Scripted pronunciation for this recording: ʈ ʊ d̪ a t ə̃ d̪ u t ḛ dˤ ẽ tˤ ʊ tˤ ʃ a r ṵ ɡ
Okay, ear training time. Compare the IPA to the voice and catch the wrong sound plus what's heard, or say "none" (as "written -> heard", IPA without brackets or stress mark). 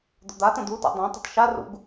ʈ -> d̪